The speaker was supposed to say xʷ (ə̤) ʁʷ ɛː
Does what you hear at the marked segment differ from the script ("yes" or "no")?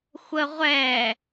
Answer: yes